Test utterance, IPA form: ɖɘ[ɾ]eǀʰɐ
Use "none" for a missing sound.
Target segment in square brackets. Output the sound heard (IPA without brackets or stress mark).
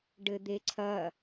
d̪